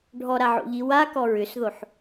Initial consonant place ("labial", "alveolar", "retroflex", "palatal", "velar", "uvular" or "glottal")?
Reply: retroflex